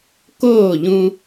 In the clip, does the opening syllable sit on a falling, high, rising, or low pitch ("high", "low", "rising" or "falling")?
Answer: falling